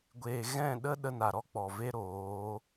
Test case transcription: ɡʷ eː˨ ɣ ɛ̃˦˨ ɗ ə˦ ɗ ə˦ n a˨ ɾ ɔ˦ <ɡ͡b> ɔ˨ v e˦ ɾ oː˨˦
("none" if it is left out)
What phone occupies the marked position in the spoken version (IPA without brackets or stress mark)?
k͡p